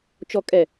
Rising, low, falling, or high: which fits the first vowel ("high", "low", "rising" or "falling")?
low